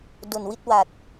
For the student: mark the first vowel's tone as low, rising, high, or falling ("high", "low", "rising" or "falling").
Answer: low